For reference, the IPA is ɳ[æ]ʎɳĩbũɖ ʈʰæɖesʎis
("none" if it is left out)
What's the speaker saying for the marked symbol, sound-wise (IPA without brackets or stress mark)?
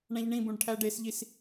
æ̃